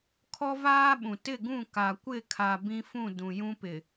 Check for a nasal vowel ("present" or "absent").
present